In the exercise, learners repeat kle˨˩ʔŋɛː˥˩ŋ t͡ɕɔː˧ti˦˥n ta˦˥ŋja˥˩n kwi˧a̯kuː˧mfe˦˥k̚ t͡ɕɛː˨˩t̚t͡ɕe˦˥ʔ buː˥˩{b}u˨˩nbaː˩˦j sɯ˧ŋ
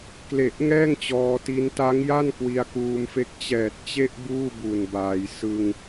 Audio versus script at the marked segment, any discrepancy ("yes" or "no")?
no